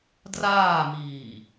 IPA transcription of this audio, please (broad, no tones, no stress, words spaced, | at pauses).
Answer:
draːmiː